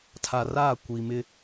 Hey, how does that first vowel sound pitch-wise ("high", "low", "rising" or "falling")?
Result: low